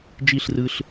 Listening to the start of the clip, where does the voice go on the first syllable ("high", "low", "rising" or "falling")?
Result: falling